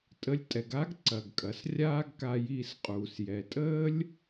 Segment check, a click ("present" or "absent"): present